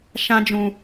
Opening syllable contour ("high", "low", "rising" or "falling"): high